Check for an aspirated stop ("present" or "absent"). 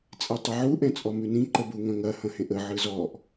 absent